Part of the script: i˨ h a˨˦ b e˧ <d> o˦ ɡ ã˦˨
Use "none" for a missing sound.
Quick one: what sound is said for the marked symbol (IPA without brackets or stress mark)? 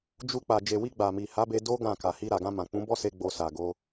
d